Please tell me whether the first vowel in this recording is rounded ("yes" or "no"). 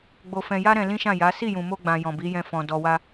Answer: yes